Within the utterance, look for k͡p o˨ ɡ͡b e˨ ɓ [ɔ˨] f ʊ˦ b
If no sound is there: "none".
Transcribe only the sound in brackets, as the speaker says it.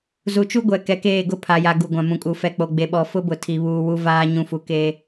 ɔ˨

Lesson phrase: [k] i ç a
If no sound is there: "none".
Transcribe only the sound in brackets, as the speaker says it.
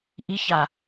ʔ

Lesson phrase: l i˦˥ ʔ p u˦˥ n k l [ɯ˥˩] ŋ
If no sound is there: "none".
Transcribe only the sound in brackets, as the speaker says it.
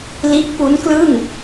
ɯ˥˩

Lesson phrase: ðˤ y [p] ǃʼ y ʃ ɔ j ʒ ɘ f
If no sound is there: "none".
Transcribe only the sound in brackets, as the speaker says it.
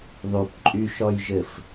p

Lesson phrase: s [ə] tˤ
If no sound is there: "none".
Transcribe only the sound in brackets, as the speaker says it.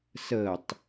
ə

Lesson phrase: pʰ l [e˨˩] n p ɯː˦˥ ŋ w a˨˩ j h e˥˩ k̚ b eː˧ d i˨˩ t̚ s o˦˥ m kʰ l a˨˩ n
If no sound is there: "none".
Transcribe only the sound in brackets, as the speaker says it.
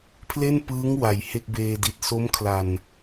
e˥˩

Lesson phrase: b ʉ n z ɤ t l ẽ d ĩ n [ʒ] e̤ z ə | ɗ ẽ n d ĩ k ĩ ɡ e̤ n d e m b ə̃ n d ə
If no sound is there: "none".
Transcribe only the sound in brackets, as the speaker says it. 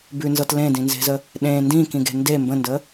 z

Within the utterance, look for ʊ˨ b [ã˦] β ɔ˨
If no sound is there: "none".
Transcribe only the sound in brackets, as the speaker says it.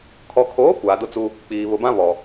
ã˦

